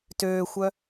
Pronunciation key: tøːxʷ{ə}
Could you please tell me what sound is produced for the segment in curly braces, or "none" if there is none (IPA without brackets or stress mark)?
œ